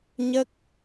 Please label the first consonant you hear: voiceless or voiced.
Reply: voiced